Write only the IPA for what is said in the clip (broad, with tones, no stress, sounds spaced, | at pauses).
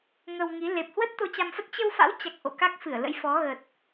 ŋ ə˧ w ŋ i˨˦ l e˨˩ p̚ h w ə˦˥ t̚ t̪ o˧ t͡ɕ a˧ m f ə˦˥ t̚ t͡ɕ ə˧ w f a̰˧˥ w t͡ɕ a˨˩ k̚ ʔ o̰˧˨ k a˦˥ k̚ f ɨ˧˩ ə̯ l ə̰˧˥ j f ɔ˨˦ ɣ ə˨˩ t̚